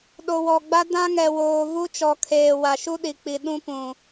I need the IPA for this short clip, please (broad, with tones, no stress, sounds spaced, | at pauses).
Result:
ɗ o˨ w ɔ˨ ɡ͡b a˦ d ã˦ ŋ ɛ˨ w oː˨ v u˦ t͡ʃ ɔ˨ kʰ eː˨ w a˨ ʃ u˦ ɗ i˨ k͡p i˨ ɗ ũ˦ p ũ˨